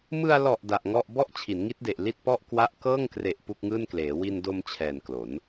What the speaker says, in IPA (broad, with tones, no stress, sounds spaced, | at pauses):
m ɯ˧ a̯ l ɔ˨˩ ʔ d a˨˩ ʔ ŋ ɔ˥˩ ʔ b ɔ˥˩ ʔ t͡ɕʰ i˩˦ n ŋ i˦˥ t̚ d e˨˩ ʔ l i˥˩ t̚ p ɔ˥˩ ʔ k w a˥˩ ʔ k ɤː˥˩ ŋ k r e˨˩ ʔ p u˥˩ k̚ ŋ ɯː˥˩ n k l eː˩˦ w i˧ n d o˧ m t͡ɕʰ ɛː˨˩ n k l o˩˦ n